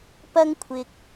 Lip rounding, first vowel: unrounded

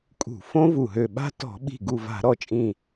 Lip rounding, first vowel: rounded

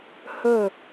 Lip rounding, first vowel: rounded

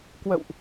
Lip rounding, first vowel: unrounded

